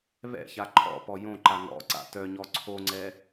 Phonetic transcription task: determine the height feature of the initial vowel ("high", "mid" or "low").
mid